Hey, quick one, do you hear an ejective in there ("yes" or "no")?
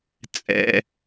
yes